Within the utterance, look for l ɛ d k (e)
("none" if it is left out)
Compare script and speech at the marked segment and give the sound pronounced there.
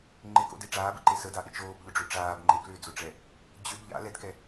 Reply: ɛ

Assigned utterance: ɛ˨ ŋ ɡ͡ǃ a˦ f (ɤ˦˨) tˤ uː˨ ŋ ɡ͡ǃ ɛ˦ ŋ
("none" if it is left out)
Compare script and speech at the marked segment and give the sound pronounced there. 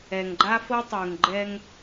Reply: ɤ˦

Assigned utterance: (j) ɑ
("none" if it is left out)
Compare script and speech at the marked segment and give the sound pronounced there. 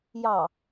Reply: j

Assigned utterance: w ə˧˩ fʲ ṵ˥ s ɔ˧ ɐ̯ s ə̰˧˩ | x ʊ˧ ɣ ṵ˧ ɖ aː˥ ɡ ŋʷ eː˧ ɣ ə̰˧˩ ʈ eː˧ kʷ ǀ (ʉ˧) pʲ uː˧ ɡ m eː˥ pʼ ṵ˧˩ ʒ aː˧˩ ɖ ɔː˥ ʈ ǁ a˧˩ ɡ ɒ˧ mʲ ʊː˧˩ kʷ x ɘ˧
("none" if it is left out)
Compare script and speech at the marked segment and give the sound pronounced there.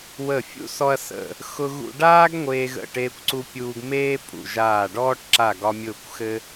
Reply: u˧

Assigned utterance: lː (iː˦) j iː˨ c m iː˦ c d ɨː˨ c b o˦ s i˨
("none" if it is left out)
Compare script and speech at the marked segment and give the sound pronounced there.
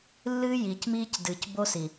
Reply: ɨː˦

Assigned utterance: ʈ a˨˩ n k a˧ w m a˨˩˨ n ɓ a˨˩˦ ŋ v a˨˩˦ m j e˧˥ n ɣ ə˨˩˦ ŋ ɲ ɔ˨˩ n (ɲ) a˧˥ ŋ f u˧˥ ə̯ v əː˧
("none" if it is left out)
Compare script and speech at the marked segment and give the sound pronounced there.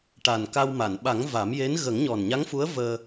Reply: ɲ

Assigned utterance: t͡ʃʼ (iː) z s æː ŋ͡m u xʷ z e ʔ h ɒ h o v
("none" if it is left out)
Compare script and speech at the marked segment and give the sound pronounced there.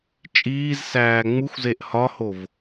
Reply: iː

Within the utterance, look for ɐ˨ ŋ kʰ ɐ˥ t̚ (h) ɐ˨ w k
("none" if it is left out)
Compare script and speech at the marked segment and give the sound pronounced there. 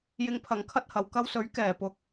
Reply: h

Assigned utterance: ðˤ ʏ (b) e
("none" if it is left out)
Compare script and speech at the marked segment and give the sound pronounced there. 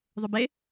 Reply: b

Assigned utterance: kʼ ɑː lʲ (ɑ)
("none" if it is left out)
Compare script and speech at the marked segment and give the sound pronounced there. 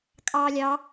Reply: ɑ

